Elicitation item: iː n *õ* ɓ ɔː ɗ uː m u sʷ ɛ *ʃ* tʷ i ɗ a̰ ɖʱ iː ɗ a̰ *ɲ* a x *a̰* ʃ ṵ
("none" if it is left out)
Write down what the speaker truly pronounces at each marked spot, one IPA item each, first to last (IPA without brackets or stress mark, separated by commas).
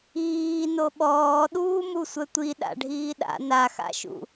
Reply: o, none, n, a̰